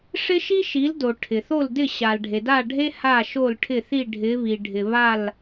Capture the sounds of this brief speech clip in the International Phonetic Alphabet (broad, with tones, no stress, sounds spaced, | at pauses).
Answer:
ʂ ɪ˥ ʃ i˥ ʃ i˩˥ l d o˩ ʈʰ ɪ˩ θ o˥˩ l d ɪ˥˩ ɕ a˩ l ɖʱ e˩ d a˥˩ ɖʱ e˥ h a˥˩ ʃ o˥˩ l ʈʰ ɪ˥˩ θ i˥˩ ɖʱ ɪ˩˥ β i˩ ɖʱ ɪ˩ β a˥˩ l